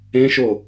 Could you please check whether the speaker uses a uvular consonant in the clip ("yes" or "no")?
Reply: no